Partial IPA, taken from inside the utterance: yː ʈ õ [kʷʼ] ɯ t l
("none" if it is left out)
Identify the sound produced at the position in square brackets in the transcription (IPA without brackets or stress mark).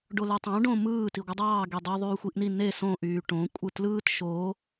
kʷʼ